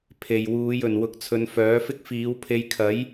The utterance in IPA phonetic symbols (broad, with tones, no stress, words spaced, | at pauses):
pʰe˨˩j wuː˨˧jɵ˨˩n wʊ˨˥k̚t͡sʰɵ˨˧nfœː˨˥ fɪ˥k̚fiː˨˥wpʰe˧j kʰɐ˨˥j